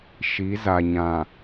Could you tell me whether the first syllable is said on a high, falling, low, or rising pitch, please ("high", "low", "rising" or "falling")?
rising